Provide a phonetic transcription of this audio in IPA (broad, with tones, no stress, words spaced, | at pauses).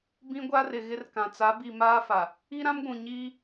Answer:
bĩ˦ɡʷa˦rɪ˨ ɣɪ˦rkã˨ t͡sa˨˦bi˨ maː˦fa˨ | i˦ɾã˦mɡʷũ˨ ɲiː˦